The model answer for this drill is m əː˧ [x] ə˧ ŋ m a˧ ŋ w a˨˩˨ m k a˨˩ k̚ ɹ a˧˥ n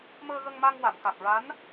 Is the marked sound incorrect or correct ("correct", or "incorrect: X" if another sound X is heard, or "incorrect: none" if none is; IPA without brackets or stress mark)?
incorrect: ɣ